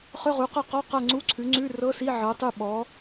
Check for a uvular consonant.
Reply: present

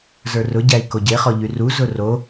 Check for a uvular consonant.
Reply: present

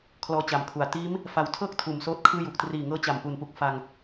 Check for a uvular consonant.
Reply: absent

